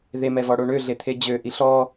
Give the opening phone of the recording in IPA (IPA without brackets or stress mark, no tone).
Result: ð